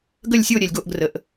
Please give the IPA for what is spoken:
ɡ ə˥˧ lʲ sʲ o˥˧ ɾʲ ɛ˨ lʲ ɡ o˥˧ ʔ ɡ r ə˨˩˦ ʔ

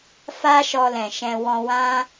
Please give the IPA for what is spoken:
f a˦ ʃ ɔ˧ l ɛ̃˨ ʃ ɛ̃˧ w ɔ̃˧ w ã˦

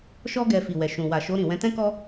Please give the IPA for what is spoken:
ʃ ɔ˦ ɡ ɛ˧ f i˨ w ɛ˨ ʃ ũ˨ w a˨ ʃ o˧ ɾ ĩ˨ w ɛ̃˧ t ɛ̃˦ k ɔ˦

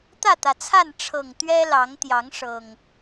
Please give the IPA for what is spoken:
t̪ ä˥˨ t̪ ä˩ t͡sʰ a˥˨ n ʈ͡ʂʰ ɤ˨˩ ŋ t̪ ɥ ɛ˦ l ɑ˨˦ ŋ t̪ j ɑ˨˦ ŋ ʂ ɤ˨˩ ŋ

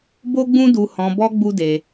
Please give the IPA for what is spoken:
b o˦ ɡ͡b ũ˦ d u˧ h ɔ̃˧ b ɔ˦ ɡ͡b u˦ d e˧

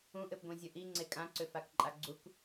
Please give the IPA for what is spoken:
ũ ʔ ɘ p ɡʷ ẽ zʲ ə ʔ i ŋ͡ǀ e kʼ ã ǀ ʏ f a k ǃʼ a ɡ͡ǀ u k

